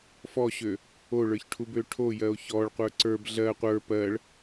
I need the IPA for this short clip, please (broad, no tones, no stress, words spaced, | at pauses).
fɔɕø | oɭə˞çʈʰubø ʈʰojɜo̯ çɔɭqʷə˞ ǀə˞b ɮɜ qʷə˞ pɜɭ